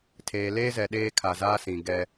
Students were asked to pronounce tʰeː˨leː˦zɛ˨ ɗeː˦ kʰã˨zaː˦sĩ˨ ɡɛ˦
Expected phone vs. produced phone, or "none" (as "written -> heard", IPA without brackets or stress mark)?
ã˨ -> a˨